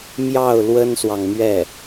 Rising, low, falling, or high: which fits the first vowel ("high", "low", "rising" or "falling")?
falling